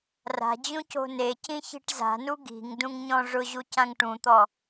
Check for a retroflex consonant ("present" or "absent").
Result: present